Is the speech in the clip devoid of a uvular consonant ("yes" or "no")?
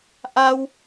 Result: yes